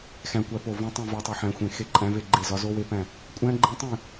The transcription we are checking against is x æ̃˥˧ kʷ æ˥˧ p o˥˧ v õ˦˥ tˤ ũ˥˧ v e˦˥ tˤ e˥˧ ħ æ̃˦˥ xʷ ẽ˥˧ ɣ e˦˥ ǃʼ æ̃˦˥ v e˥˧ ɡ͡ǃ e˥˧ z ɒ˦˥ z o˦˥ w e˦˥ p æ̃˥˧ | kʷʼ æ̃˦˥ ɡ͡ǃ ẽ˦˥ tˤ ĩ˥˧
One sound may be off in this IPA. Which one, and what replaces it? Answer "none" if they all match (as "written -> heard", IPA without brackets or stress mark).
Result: ɣ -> x